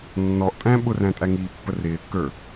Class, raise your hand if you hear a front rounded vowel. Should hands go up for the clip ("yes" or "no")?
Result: no